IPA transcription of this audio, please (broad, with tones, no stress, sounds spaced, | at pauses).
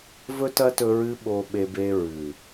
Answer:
v ɵ˦ t ɐ˦ t ɵ˧ ɹ ɨ˧ ɓ o˧ ɓ e˧ b e˧ ɹ ʉ˨